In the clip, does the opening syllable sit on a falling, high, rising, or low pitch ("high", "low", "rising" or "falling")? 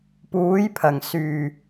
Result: rising